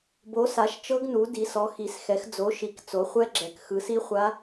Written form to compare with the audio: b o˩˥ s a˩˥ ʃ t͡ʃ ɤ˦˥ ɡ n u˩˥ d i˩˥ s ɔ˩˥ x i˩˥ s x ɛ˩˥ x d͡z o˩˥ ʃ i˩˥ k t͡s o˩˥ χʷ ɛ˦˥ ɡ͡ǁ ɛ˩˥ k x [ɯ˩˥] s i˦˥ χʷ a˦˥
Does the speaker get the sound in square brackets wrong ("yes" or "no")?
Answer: no